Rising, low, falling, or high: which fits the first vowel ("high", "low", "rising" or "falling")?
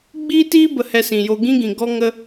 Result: high